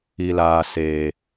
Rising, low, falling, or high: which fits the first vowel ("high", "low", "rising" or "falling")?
low